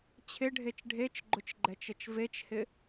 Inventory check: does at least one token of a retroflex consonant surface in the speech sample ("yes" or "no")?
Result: yes